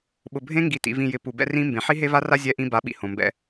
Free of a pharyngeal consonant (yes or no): no